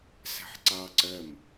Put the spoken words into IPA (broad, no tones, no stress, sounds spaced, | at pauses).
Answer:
s æ̤ ħ ǀ ɑ ǀ ɜ m